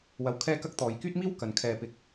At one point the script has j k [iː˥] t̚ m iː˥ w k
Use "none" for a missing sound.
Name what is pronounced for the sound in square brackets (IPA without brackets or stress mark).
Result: yː˥